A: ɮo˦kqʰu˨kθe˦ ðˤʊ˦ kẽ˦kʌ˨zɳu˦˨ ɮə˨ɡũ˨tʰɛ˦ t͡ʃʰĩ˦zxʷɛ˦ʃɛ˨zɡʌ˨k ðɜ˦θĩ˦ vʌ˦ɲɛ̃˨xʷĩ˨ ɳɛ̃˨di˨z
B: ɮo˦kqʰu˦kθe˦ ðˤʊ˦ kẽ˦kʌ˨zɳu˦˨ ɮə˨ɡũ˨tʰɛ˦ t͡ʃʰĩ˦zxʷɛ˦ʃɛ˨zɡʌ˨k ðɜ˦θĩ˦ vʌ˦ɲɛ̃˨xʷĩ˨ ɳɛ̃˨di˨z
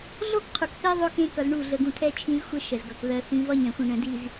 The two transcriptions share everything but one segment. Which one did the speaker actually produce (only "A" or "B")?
A